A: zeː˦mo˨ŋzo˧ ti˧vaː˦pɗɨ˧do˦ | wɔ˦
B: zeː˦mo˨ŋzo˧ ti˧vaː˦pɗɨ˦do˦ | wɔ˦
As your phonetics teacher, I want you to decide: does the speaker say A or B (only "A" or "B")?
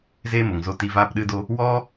B